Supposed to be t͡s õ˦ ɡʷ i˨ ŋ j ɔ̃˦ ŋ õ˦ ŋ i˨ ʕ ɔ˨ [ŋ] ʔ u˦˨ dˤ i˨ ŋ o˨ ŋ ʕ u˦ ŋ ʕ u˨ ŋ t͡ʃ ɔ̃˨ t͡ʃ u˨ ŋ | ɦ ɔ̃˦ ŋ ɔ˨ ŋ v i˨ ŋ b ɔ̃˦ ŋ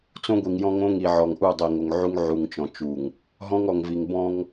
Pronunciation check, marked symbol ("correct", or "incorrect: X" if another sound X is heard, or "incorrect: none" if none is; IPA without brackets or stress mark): correct